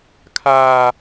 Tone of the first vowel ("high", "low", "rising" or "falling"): high